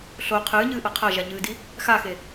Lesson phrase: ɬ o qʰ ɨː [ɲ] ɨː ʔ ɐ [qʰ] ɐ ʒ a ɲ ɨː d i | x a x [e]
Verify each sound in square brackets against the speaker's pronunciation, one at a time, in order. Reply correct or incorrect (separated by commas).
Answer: correct, correct, correct